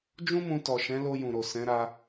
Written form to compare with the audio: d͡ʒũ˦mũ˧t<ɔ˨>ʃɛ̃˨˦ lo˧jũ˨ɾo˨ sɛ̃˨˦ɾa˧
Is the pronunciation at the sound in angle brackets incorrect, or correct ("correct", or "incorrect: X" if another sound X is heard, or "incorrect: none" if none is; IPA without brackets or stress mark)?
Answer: correct